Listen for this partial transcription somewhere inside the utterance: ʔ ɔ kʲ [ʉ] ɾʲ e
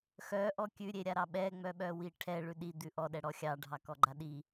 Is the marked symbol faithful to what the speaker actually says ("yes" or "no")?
yes